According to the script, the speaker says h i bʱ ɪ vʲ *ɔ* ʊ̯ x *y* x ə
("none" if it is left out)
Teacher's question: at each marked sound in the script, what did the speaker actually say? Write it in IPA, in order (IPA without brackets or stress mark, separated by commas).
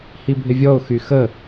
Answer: ɔ, y